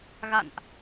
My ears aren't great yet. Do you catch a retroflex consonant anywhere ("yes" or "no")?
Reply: no